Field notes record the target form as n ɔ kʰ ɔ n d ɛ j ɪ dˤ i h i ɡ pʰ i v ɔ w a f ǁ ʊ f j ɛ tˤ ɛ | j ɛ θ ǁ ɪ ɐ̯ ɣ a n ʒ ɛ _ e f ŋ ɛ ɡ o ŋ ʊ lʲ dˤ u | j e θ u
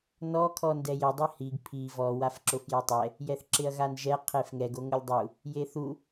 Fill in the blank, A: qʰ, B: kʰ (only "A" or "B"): A